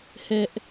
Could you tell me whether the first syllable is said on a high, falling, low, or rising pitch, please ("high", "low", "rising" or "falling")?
high